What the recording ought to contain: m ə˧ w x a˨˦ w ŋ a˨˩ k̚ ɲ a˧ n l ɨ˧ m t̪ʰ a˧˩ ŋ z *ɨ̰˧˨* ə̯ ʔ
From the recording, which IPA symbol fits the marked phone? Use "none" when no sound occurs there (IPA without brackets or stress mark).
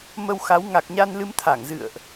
ɨ̰˧˨